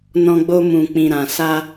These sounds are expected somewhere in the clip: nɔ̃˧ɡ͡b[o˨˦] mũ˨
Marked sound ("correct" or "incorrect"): incorrect